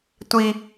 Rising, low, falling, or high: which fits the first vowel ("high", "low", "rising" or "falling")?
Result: high